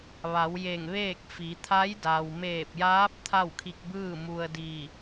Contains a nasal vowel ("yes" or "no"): no